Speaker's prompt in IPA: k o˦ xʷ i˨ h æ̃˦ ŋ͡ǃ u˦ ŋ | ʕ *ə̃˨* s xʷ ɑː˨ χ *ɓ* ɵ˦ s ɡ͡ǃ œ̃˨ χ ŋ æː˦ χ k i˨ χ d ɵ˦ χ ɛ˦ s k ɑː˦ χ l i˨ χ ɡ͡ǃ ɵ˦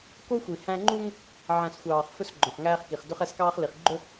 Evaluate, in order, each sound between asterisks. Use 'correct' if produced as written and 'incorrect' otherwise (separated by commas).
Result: incorrect, incorrect